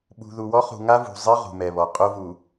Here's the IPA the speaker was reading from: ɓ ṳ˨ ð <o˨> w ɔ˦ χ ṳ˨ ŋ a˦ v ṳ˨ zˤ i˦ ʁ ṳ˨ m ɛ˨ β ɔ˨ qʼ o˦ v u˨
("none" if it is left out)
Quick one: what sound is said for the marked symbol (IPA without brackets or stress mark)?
u˨